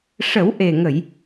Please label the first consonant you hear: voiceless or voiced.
voiceless